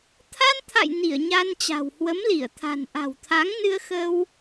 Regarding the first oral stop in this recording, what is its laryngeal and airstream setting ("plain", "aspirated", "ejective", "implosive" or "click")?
aspirated